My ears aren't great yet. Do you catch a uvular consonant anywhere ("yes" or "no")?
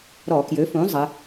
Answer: no